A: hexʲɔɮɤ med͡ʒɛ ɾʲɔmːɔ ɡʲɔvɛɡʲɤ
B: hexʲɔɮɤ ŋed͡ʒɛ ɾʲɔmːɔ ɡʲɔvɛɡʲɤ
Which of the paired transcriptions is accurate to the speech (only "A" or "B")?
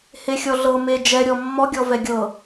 A